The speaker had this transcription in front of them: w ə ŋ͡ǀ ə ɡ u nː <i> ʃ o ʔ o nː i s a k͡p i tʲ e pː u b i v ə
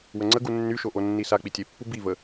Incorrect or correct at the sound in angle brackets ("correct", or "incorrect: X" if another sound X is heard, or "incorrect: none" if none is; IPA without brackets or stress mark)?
incorrect: y